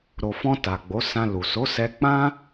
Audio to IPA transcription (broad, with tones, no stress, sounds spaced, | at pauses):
ɾ o˨ f ɔ̃˧ t a˨ ɡ͡b o˨˦ s ã˧ l u˨ s o˨˦ s ɛ˧ k͡p ã˦